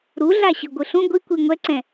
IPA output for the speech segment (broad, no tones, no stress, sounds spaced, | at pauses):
ɾ u ɮ a ɕ ɯ ɡʷ ɯ ɬ ũ ɡʷ i kʷ i ŋʷ ɛ ǀ ɛ̃